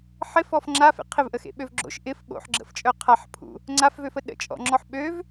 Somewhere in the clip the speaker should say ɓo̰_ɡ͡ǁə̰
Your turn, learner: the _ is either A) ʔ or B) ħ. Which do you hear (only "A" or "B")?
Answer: B